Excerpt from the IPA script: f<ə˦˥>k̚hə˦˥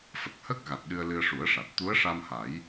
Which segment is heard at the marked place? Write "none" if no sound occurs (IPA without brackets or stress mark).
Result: ə˨˩